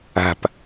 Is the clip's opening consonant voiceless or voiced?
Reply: voiceless